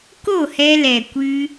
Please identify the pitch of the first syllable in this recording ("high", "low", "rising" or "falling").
falling